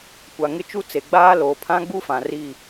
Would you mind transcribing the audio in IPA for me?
kʷ a˨ ŋ ɪ˦ t͡ʃ u˦ t͡s e˨ ɡ͡b aː˦ l oː˨ pʰ ã˦ ɡ͡b u˦ f ã˨ r i˦˨

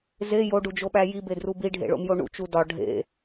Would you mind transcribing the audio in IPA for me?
z e j o ɖ u d͡ʒ o ɓ æ j i b e d r u b i ɖʱ ḛ ɭ o̰ m j o ɳ ṵ t͡ʃ u d ɒ ɖʱ ḛ

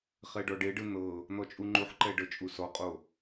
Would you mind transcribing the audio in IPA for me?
χ ɛ ɖ ɔ ɖ e ɖ ɯ n̪ ɤ | n̪ ɔ t͡ʃʼ u ŋ͡ǃ u ħ ǃ ɛ ɖ ɤ t͡ʃʼ u s ɔ qʼ o

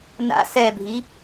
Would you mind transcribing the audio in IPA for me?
n a̰ s ɛ bʱ i

